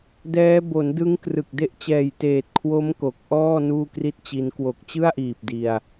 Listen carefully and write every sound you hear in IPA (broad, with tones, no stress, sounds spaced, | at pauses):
d ɛː˦˥ b o˩˦ n d ɯ˦˥ ŋ k r ɯ˨˩ k̚ d e˥˩ ʔ t͡ɕ ɛː˨˩ j t eː˨˩ t̚ kʰ w o˦˥ m k o˨˩ k̚ ʔ ɔː˥˩ n uː˥˩ k r i˥˩ t̚ t͡ɕ i˦˥ n k w o˨˩ k̚ t͡ɕ ɯ˥˩ a̯ ʔ iː˨˩ p̚ d i˧ a̯